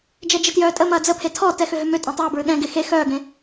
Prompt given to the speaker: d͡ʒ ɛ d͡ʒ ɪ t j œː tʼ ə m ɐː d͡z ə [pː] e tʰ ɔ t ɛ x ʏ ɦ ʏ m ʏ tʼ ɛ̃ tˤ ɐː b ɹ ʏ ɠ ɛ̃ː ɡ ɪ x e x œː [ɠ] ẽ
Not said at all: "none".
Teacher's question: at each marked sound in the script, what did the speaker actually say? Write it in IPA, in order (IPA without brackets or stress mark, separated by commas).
pʰ, ɡ